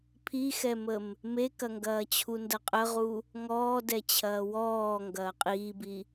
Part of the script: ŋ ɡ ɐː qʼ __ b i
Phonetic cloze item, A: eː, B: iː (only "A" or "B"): B